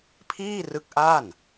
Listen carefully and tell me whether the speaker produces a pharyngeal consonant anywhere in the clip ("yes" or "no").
no